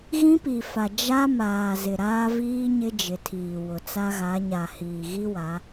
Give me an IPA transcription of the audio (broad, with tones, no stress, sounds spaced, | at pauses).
ɣ ĩ˦ p i˨ f a˨ d͡ʒ a˦ m aː˨ z ɪ˨ ɾ aː˦ v iː˦ ɲ ɪ˦ d͡ʒ ɪ˨ tʰ iː˨ w ʊ˨ t͡s a˦ ɣ a˨˦ ɲ a˨ h iː˨ ɣ i˦ w a˨˦